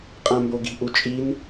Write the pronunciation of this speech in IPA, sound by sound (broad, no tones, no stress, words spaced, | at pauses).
qʼãmboɡi̤ ʔut͡ʃʼin